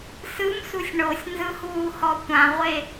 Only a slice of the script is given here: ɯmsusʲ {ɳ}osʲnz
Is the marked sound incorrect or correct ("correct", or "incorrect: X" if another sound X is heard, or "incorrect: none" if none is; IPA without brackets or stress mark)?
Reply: correct